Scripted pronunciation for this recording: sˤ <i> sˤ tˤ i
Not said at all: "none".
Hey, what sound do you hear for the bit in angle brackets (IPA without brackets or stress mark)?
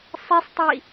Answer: i